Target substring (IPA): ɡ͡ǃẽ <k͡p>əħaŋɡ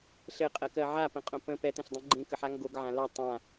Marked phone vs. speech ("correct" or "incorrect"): incorrect